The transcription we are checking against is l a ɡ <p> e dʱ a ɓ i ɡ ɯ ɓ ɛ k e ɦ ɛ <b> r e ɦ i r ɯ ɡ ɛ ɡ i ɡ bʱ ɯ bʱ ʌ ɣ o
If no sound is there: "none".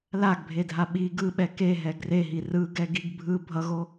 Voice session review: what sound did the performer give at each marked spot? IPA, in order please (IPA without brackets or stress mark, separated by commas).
bʱ, ɡ